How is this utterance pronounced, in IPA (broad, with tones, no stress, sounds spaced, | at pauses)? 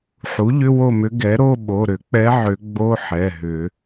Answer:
ħ u˩˥ ʎ ʏ˧˥˧ w o˥˨ m ʏ˧˥ ɡ ɛ˩˥ ɾ o˧˥˧ ɓ o˩˧˩ ɾ ʏ˨˩˦ k͡p ɛ˧˥ ʕ ʏ˨˩˦ ɡ͡b o˧˥˧ ħ ɛ˩˧˩ ɦ ʏ˨˩˦